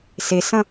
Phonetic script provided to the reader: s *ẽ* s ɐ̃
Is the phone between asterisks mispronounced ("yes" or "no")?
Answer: yes